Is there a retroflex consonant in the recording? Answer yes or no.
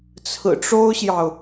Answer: yes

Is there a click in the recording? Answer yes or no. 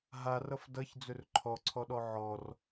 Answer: yes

